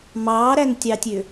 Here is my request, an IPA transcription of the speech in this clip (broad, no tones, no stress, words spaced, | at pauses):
mɑːɾæntʲɑtʲø